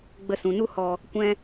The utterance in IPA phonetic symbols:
ɡ͡b ə˧ s ũ˨ n u˦ h ɔ˨ | kʷ ɛ̃˧

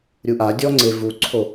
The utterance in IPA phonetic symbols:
ɾʲ u ʔ a dʲ ɔ ŋ͡ǀ e v u ǀʰ o

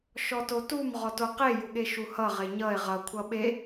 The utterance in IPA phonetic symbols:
ʃ ɔ t o t u m ʁ ɔ t o q e j u ɠ e ʃ u h ʌ ʁ e ɲ ʌ e̯ ʁ ʌ kʷʰ ʌ ɓ e

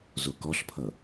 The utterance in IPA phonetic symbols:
z o k ɔ ɬ pʰ ʌ

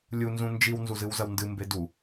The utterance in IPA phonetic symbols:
lʲ u n z ũ n d͡ʒ i w n z u z ɨ w z ɐ w n d ɨ m b e d u

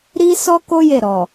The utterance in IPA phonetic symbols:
ɾ i˦ s ɔ˦ k o˦ j e˦˨ ɾ ɔ˨

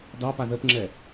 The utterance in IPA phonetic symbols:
d ɑ p a ð ə p ŋ͡ǁ ɛ

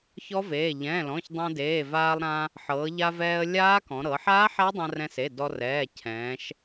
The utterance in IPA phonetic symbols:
ç ɔ˦˥ v eː˩˧˩ ʎ ɛ̃ː˩˧˩ l ɔ̃˩˧˩ ç dˤ ɛ̃˧ d eː˩˧˩ v aː˧ lˠ ɾ ã˧ | ħ ɤː˩˧ ʎ a˧ v ɛː˧ ə̯ lʲ aː˦˥ k ɔ̃˩˧ ɾ ɤ˩˧ ħ aː˦˥ ħ a˦˥ dˤ ã˧ r ɛ̃˧ s e˩˧˩ d ɔ˧ r ɛː˩˧˩ cʰ ɛ̃ː˩˧ ʃ

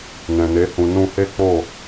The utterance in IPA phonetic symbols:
n ɛ̃˨ n e˨˦ h ũ˧ n ũ˧ h e˦ k͡p o˦˨

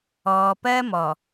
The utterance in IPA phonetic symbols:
ɔː˨ p ɜ˦ m ɔ˨

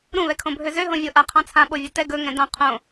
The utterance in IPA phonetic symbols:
ɾ ũ β ɛ kʰ õ bʱ ø z ø ɦ õ vʲ o ʔ a qʰ ɑ̃ t͡sʰ ã ɓ o vʲ o t ɛ ɡ ɵ ŋ ɛ̃ d ɑ̃ qʰ õ

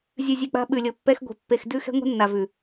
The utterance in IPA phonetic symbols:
zʲ ʉ˨ zʲ ʉ˨ k͡p a̤˦ ɓ ʉ˨ lʲ ɤ˨ pː ɛ˦ x ɡʷ e̤˨ pː e˨ x d ʉ˦ x ɛ̤˦ ŋʷ e̤˦ nː a˨ v ʉ˨

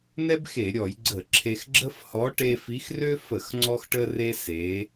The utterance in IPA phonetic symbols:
n ɛ˥ b x e˧˩˧ ɾʲ ɔ˧˩˧ j ɡ͡ǀ ə˧˩˧ ǁʰ e˧ x ɡ͡ǁ ə˥ f h ɔ˨˥ ʈ e˧ f i˨˥ x r ø˥ f ə˧˩˧ x ŋ͡ǀ ɔ˧ x ʈ ə˧ r e˧ s e˨˥

